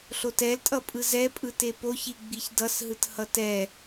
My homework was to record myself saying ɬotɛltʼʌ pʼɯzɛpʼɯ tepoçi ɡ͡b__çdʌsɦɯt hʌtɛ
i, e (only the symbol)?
i